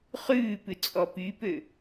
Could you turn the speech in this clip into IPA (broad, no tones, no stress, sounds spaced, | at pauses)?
χ ʉː p ʉ t͡sʼ ɔ p y p ø